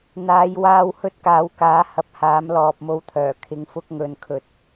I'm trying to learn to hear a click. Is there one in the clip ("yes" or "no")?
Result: no